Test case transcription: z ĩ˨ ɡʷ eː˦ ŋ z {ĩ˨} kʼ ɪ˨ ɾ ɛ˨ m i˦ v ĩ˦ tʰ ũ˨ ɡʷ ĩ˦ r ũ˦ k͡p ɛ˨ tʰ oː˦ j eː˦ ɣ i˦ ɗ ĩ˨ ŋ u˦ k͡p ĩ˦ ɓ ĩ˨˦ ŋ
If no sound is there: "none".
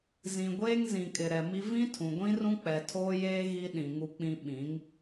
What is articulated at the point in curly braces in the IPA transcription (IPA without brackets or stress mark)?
ĩ˨